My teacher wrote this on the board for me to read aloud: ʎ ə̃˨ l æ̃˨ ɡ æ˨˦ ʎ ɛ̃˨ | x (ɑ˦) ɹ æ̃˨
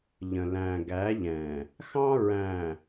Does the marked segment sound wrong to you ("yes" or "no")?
yes